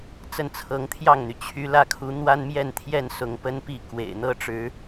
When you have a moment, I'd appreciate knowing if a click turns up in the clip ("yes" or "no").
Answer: no